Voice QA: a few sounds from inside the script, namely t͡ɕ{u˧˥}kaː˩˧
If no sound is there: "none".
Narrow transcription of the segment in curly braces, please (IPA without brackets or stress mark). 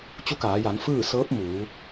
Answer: u˧˥